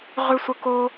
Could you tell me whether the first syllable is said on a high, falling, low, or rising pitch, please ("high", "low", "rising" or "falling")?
high